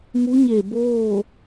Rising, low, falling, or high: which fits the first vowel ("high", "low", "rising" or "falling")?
rising